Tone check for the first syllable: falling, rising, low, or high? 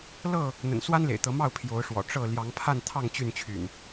falling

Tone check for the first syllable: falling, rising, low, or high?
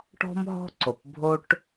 high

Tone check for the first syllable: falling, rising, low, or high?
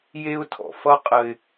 high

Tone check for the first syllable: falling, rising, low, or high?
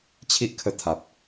high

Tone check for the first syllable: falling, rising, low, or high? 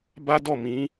high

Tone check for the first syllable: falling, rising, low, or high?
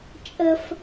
high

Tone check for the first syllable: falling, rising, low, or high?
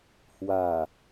low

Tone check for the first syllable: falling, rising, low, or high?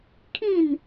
falling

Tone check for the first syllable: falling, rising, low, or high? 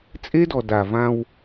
high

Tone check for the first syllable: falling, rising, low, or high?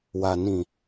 low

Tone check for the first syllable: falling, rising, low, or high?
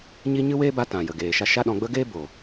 high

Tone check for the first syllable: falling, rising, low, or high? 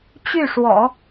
falling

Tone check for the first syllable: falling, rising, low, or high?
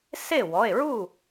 falling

